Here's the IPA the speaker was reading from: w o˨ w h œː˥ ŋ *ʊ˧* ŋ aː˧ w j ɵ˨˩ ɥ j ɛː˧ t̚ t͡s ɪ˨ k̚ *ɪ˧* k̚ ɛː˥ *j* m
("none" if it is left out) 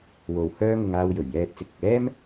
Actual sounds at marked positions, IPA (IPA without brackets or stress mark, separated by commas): ʊ˧, ɪ˨, none